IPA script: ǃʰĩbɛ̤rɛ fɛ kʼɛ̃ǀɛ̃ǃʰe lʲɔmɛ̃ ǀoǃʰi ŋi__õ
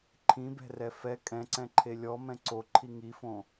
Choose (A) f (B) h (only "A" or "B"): A